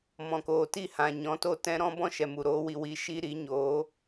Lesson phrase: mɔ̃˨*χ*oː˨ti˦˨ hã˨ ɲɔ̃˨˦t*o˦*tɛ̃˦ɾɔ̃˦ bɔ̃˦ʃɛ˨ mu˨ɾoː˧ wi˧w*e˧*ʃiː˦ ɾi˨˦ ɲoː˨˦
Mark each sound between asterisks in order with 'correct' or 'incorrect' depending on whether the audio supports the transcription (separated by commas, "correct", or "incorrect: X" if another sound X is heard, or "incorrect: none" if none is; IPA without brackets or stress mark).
incorrect: k, correct, incorrect: i˧